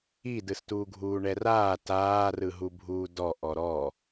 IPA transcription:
i d ɯ s t uː ɡʱ uː ɳ ɛ r aː t aː r ɯ ɦ u bʱ uː d ɔ ʔ ɔ ɾ ɔ

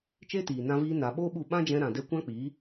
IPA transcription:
t͡ʃ e˦ t iː˨ n ã˧ v iː˧ n a˨ ɓ o˦ ɓ u˦˨ ɓ ã˦ d͡ʒ ɛ̃˧ ɾ ã˨ d ɛ˧ kʷ ã˦ k͡p iː˨˦

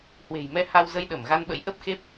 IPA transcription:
h w e̤˨˩ j m ɛ˧ h a˧ w z ə˧ j ɗ ə˧˩ m ɣ a˧ n ɓ ə̰˧˥ j ʔ ə˦˥ p̚ x e˦˥ p̚

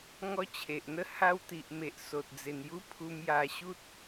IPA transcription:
ŋ ɔ˦ t͡ɕʰ e˨ ʔ n̪ ə˥˧ h a˧ w t̪ i˨ ʔ m e˨ ʔ s o˨ t̚ d͡z e˨˩ n j u˦ pʰ u˧ m j a˧ ɕ u˦ t̚

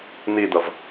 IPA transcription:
n̪ i d̪ ʌ v

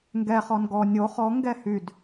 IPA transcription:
ŋ ɡ ɛ χ ɔ n ɡ ɔ nʲ o χ ɔ ŋ ɡ ɛ h y d

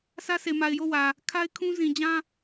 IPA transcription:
s ä˦ sʰ e˨ m a˨ ɪ̯ j o˦˨ w ä˨ | kʰ a˦ ɪ̯ kʰ ũ˦ z ĩ˨ d͡ʑ ã˦

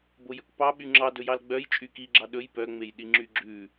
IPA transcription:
b o j ɵ k p ɑ ɓ y ŋ͡ǁ ɑ d ɵ j ɑ l ɡ͡b œ j t͡ʃʼ y k i ɡ͡ǁ ɑ ɗ ɵ j p œ ŋ͡m e j ɗ i ŋ͡ǁ y ɡ͡ǁ ʉ

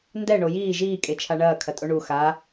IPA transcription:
n d ɛ ɳ o j iː ʒ iː kʼ e t͡ʃʰ a ɳ ɐː kʰ ɐ tʼ o ɳ u x a

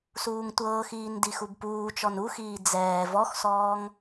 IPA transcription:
s uː ŋ tʷ ɤː x iː n d i x u b p uː t͡ʃ ɔ n u x iː d͡z ɛː v ɔ x s ɔː ŋ

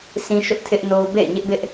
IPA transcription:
sʰ ĩ˦ ʃ ʊ˦ ʔ tʰ ɪ˦ ʔ n o˦ ʊ̯ b ḛ˦˨ ɪ̯ ɲ ɪ˦ ʔ b ɪ˦ ʔ

